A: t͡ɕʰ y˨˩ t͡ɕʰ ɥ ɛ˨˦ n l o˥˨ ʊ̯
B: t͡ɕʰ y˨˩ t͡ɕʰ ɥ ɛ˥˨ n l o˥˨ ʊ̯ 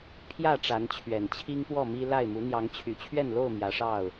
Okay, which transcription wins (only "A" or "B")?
B